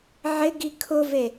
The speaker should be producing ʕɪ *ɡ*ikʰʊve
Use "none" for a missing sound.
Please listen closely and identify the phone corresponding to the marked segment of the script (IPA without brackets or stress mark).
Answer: ɡ